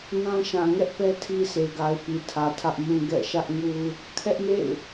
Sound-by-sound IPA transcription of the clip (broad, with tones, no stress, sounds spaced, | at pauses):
n ã˦ ʃ ã˨ ŋ ɛ˦ ʔ p ɛ˦ tʰ i˦ s e˨ ɡ a˨ ɪ̯ p i˨ tʰ ä˨ tʰ ä˦ ʔ m ũ˦ ɡ ɛ̰˦˨ ʃ ä˦ ʔ ŋ u˦ | kʰ ɛ˦ ʔ m ḛ˦˨ ɪ̯